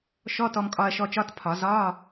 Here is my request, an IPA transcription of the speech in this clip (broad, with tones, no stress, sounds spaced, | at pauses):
ʃ ɔ˧˥˧ t ɔ˧ m kʼ ɒ˧ ɐ̯ ʃ ɔ˧ t͡ʃ ɒ˧˥˧ t pʰ ɒ˨˩˦ z ɒ˧˥˧